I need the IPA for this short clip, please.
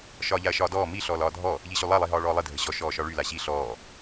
ʃ ɒː ʎ a ɐ̯ ʃ ɒː d ɔː m i ɬ ɔː l ɒː dʱ ɔ | ʎ i ɕ y lˠ a lˠ i ɦ ɒː ɭ ɔː lˠ i dʱ ə ɕ ɔ ʃ ɔː ʃ ɒ ɭ y l a ɕ i ɬ ɔː

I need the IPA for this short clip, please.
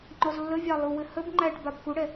ŋ͡ǃ ɔ z lː ə vʲ ɑ lˠ u w ɘ h ə b ŋ͡ǃ æ ʈ b a b k u ɽ ɛ

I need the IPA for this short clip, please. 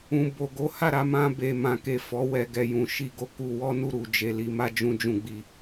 ũ˨ b o˨ ɡ o˨˦ h a˦˨ ɾ a˧ m ã˧ b e˨ m ã˨ k e˨ f ɔ˨˦ w ɛ˧ ɡ ɛ˨ j ũ˨ ʃ i˧ ɡ o˧ k u˧ w ɔ˦ n u˧ ɾ u˨ d͡ʒ e˨ l i˨ m a˧ d͡ʒ ũ˧ d͡ʒ ũ˧ ɡ͡b i˧

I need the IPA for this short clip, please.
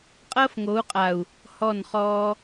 qʼ ɐː˦ f ŋ o˨˦ u̯ qʼ a˨ u̯ | h ɔ˦˨ n χ ɔː˧

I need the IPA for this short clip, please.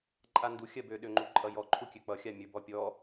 ǃʼ a n d u xʲ ɜ b ø ɗ ø ŋ͡ǃ u ǃʼ ʌ j ɔ ǃʰ u kʲ ø k͡p ʌ xʲ a mʲ ə˞ b ɔ pʲ ɔ

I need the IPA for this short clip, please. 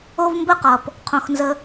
o˦ v m b ə˦˨ q ʌ˨ p | qʰ õ˧ x n z ə˧

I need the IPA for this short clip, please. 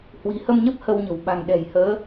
h w i̤˨˩ h ə˧ m ɲ ə˦˥ p̚ h ə˧ w ɲ ə̤˨˩ w ɓ a̤˨˩ ŋ ɗ ɛ̤˨˩ j h əː˨˦

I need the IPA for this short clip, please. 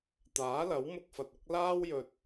t̪ aː˨˥ l ɐ˨˥ w m ʊ˧ k̚ f ɐ˨ t̚ ʊ˨˥ k̚ l aː˥ w j ɵ˧ t̚

